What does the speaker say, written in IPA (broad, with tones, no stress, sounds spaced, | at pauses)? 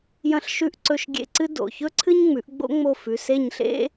j ɐ̃˦˨ ɬ ʃ ʉ˦˨ ʔ ǀ ɵ˦˨ ʃ ɡʲ ḛ˦˨ ǀ ɨ˥ d o̰˩˧˩ ç ɵ˥ ǀʰ ɨ˥ ɲ ŋ͡m ʉ˩˥ ʔ ɡ͡b o̰˥ ŋ͡m o˦˨ f ʉ˩˧˩ s e˦˨ ɲ ɬ ḛ˥